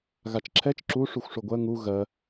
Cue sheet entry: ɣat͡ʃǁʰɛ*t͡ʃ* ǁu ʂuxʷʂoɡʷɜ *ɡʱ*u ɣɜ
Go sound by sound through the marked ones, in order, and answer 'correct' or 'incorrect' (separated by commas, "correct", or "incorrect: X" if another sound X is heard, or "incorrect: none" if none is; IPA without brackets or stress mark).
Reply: correct, incorrect: ŋ